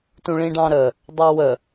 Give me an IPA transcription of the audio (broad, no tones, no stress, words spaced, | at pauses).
tũɭĩɖɑ̃ɾə | dˤɑwə